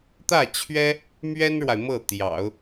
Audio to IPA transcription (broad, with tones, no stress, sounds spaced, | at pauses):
t̪ ä˥˩ t͡ɕʰ ɥ ɛ˥ | m ɥ ɛ˥ n ɻ w a˨ ɪ̯ m ɤ˥˩ t̪ j ɑ̰˨˩˦ ʊ̯